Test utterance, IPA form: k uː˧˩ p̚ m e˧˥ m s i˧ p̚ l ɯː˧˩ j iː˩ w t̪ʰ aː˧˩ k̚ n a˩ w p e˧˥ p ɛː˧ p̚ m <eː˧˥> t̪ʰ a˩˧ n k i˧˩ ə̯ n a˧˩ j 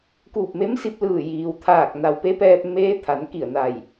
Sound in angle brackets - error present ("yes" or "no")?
no